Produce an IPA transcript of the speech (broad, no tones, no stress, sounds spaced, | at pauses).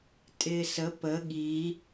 tʼ ɪː s ə p ə ɠ i